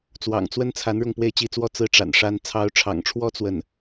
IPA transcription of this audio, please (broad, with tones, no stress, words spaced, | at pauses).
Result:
t͡swɑ̰˨˩ŋt͡swə˥nt͡sʰa˧˥n ɻʊ˥˧ŋpwe˥˩ɪ̯t͡ɕi˥t͡swɔ˥ t͡sɹ̩˥˩ ʈ͡ʂa̰˨˩nʂa˥n t͡sʰɑ˧˥ʊ̯ʈ͡ʂʰɑ̰˨˩ŋʈ͡ʂʰwɔ˥ t͡swə˥˩n